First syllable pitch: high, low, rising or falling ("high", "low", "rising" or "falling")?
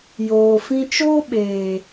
low